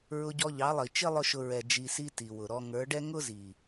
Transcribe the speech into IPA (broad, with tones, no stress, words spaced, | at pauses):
ɹʊ˧ɟɔ˧ ʎɑ˨˦lˠi˨ t͡ʃɪ˦ lˠʊ˦ʃʊ˧ ɹɛ˨ d͡ʒi˧si˦ ti˨wʊ˨ɾɔ˧ ŋə˞˨˦ɖɛ˦ ŋʊ˦zi˨